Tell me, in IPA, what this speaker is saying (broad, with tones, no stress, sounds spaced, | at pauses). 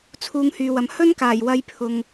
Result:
t͡sʰ uː˨ ŋ h yː˨ w ɐ˨ m h ɵ˥ n k aː˨˩ j w ɐ˧ j pʰ ʊ˨ ŋ